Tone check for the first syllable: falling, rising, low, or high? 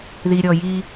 low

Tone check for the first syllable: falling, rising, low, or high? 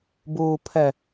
low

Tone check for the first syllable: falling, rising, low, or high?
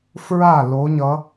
falling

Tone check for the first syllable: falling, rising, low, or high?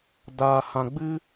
low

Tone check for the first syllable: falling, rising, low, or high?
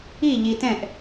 falling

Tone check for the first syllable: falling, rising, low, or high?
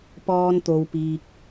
high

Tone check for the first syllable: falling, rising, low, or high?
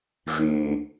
low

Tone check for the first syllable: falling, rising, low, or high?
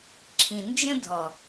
low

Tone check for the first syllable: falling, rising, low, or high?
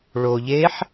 low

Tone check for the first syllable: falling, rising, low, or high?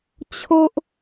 high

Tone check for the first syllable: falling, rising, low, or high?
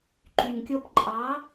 low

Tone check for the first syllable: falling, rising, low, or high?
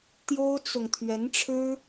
high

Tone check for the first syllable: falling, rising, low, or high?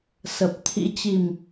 low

